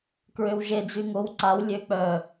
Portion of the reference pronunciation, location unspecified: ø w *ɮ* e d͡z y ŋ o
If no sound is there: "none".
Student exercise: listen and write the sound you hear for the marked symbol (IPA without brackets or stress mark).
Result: ʒ